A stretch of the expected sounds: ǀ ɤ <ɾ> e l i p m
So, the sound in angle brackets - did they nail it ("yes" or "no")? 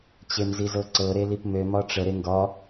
yes